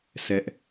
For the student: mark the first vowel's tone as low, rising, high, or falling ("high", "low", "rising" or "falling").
high